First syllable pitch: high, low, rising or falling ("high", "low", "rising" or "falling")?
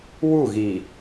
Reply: falling